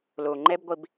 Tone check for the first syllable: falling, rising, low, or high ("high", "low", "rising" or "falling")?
low